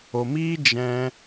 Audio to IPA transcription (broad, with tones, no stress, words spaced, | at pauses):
o˨miː˦ d͡ʒɛ̃˧